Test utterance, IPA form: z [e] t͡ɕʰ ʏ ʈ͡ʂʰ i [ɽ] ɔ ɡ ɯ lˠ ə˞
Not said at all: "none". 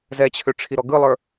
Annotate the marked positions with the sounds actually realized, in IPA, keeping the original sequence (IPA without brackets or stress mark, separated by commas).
ɛ, ɾ